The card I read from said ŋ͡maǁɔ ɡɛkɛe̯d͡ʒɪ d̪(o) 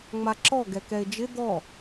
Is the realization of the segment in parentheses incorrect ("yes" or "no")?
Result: yes